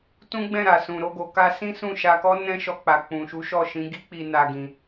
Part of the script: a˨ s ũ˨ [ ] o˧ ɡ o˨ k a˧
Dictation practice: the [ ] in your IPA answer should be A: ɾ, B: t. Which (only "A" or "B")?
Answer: A